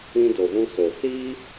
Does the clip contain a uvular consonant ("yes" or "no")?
no